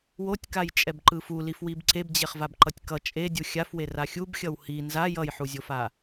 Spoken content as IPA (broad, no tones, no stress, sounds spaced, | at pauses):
w o tʲ k a j t͡ʃʼ ɛ b ǃ ɯ f u l i f w i b ǀ e b d͡ʑ e χ v a b ǃ ʌ tʲ k ʌ t͡ʃʼ e dʲ u xʲ a f w e r a xʲ u b xʲ ʌ w h i n z a j ʌ j ħ u zʲ o f a